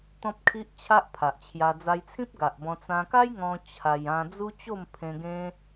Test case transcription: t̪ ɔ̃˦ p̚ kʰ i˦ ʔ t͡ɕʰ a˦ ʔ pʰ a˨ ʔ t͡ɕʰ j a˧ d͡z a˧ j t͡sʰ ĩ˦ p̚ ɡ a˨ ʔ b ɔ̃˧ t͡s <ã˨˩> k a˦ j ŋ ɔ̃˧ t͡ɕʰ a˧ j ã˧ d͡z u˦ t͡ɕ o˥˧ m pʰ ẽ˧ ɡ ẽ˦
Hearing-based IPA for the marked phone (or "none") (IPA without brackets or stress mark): ã˧